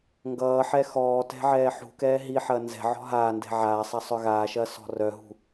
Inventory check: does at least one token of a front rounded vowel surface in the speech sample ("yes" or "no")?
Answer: yes